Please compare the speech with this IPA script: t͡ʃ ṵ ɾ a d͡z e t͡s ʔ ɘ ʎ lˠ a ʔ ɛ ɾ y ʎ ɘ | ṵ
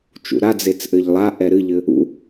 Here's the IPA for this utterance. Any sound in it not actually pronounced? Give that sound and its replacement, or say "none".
y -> ɨ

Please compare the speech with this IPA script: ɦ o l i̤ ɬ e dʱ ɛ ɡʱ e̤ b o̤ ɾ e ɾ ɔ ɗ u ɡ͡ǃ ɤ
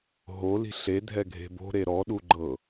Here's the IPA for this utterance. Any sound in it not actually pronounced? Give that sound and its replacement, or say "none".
none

